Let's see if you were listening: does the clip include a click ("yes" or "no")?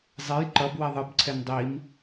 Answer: yes